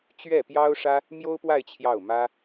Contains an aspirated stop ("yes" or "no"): yes